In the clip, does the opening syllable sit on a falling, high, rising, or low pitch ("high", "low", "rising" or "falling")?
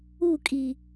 falling